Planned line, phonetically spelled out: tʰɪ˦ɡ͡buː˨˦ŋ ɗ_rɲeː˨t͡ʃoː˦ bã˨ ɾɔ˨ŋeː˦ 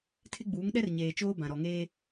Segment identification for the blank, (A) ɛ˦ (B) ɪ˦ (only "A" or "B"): A